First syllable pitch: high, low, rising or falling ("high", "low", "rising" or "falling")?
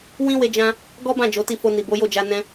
high